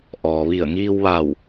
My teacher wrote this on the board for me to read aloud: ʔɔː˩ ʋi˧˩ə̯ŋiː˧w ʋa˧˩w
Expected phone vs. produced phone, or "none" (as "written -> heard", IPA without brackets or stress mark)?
none